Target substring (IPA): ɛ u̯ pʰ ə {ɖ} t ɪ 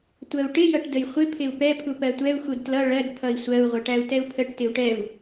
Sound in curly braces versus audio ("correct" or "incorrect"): incorrect